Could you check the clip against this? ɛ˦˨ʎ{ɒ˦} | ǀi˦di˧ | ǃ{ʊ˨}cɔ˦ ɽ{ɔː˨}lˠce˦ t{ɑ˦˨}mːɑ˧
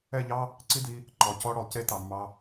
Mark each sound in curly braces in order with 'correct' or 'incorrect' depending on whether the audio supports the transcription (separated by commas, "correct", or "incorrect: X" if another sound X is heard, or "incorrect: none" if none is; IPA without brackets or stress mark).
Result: incorrect: ɑ˦, incorrect: ɔ˨, incorrect: ɔ˨, incorrect: ɑ˨